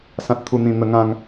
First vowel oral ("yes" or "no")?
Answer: no